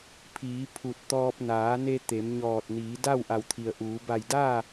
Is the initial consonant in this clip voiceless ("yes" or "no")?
yes